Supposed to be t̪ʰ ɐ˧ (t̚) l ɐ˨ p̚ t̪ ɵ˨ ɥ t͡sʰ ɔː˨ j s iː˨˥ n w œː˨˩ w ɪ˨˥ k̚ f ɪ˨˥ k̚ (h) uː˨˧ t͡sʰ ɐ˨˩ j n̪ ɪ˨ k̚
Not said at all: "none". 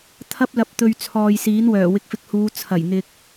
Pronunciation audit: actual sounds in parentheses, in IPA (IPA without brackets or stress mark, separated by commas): p̚, h